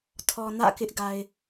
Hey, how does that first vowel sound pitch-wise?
low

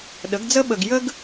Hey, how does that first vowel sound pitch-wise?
rising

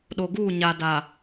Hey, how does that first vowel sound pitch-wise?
low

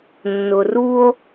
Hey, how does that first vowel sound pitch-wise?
low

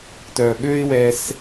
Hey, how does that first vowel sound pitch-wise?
low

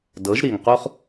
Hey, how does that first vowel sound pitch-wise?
rising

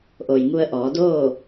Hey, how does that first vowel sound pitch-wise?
low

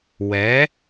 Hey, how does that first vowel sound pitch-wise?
rising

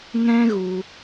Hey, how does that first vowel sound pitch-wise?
high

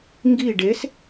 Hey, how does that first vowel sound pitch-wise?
falling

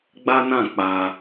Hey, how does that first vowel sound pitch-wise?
high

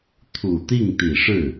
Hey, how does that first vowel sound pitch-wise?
low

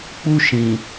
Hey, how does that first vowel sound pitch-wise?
high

